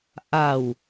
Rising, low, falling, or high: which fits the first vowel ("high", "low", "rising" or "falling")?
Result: low